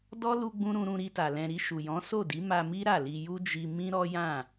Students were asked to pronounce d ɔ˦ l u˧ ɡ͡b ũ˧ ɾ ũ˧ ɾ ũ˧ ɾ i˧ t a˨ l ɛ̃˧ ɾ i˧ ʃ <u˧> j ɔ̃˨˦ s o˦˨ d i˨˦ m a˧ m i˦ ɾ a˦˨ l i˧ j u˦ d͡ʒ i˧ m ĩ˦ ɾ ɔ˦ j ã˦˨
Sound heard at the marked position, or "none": u˨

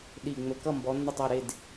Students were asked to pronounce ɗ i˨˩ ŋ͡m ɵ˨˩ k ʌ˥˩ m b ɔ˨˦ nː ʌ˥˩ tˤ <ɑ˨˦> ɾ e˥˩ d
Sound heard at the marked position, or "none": ɑ˥˩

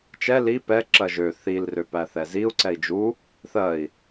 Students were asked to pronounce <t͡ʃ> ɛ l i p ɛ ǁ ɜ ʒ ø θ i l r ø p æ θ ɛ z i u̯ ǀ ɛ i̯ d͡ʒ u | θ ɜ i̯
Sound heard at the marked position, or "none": t͡ʃ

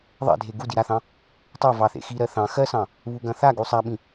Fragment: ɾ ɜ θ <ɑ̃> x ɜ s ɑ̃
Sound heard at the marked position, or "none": ɑ̃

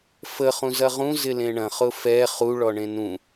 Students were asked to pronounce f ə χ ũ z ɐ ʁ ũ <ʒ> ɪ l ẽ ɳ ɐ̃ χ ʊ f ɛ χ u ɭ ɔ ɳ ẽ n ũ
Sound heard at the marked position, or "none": z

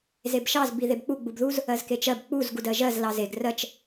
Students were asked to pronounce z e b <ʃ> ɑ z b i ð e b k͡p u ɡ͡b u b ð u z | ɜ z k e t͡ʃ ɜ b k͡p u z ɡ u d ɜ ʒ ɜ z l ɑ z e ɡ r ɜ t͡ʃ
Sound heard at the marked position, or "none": ʃ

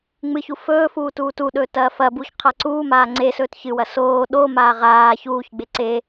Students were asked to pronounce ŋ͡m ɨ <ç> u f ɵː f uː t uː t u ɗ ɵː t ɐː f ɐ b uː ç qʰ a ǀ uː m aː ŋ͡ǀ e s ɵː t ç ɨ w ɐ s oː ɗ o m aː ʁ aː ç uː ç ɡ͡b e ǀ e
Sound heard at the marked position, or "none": ç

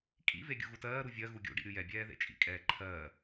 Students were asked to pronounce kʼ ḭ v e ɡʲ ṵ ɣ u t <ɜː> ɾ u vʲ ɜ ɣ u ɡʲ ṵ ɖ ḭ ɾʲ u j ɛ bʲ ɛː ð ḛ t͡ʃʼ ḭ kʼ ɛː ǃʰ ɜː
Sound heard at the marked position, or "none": ɜː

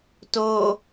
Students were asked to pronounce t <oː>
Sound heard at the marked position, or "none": oː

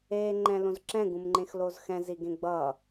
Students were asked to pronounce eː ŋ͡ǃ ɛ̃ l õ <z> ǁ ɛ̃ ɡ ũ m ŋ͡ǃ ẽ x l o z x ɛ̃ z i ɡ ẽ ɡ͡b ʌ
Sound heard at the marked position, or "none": z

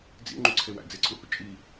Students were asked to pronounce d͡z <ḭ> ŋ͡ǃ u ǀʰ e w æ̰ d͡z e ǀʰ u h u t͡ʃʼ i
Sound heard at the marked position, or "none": ḭ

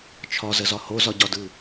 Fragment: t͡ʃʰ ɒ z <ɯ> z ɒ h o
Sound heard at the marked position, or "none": ə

